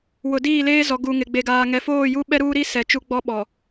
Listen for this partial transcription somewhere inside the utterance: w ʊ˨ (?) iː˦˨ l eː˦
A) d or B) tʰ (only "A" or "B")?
A